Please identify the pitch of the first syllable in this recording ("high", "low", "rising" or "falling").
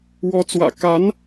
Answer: rising